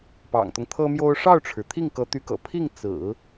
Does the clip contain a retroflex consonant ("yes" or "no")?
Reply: yes